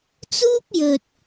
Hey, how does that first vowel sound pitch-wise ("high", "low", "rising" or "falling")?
high